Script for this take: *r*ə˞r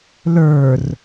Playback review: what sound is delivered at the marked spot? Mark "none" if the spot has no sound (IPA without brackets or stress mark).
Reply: l